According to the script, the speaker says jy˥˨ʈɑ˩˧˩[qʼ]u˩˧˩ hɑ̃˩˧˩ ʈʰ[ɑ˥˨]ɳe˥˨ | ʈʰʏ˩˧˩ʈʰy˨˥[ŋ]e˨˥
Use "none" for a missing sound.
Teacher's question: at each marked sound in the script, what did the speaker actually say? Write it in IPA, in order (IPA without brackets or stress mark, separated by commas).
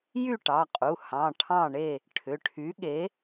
qʼ, ɑ̃˥˨, ɠ